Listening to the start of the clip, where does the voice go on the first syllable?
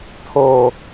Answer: low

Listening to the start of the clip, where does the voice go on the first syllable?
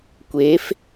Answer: rising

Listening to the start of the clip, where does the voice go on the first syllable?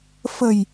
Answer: low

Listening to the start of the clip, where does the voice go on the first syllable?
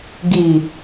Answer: low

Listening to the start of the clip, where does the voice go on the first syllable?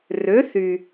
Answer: rising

